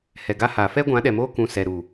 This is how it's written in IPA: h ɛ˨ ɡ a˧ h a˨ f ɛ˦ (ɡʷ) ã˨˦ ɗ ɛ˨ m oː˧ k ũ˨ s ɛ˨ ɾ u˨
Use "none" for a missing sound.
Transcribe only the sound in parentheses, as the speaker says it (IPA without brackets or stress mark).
ɡʷ